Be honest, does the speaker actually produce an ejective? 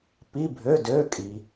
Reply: yes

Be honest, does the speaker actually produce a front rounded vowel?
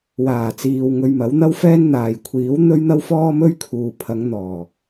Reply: no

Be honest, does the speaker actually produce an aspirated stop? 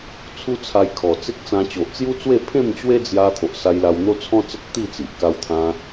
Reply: yes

